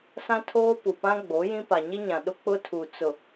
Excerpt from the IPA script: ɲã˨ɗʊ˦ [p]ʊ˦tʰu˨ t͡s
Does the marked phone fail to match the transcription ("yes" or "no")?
yes